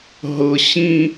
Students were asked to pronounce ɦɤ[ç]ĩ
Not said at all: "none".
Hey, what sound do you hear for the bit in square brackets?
ɕ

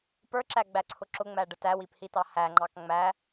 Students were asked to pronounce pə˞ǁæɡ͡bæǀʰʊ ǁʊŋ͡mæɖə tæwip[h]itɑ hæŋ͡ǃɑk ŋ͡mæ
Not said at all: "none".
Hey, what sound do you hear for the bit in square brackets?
h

